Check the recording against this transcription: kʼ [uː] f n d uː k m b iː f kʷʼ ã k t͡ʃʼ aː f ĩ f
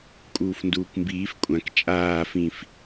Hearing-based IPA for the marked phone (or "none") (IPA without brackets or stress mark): uː